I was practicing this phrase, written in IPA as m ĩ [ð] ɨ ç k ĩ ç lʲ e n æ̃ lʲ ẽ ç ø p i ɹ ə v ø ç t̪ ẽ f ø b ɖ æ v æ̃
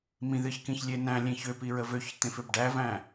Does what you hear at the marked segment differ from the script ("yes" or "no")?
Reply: no